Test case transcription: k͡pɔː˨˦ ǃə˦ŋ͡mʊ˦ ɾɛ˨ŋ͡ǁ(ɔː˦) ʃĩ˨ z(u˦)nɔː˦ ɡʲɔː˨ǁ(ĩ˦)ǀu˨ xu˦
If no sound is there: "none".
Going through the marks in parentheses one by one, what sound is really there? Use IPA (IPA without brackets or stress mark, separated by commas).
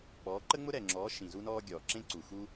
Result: ɔː˨˦, u˦, ẽ˦